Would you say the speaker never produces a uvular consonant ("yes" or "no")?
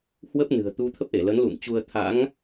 yes